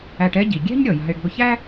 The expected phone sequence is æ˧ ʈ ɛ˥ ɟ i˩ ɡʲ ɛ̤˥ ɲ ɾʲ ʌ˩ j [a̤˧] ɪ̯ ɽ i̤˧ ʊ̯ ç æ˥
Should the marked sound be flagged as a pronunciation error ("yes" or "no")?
no